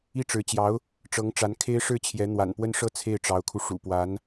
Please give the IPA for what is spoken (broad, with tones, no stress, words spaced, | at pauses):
i˥˩ʈ͡ʂɻ̩˧˥t͡ɕjɑ˧˥ʊ̯ | ʈ͡ʂɤ˧˥ŋʈ͡ʂa˧˥n kʰe˥ɪ̯ʂɻ̩˥˩t͡ɕʰjɛ˧˥ n̪wa̰˨˩npwə˥˧nʂɤ˥˧ t͡sʰe˥˩ɪ̯ʈ͡ʂɑ˧˥ʊ̯kʰu˧ ʂṵ˨˩pwa˧˥n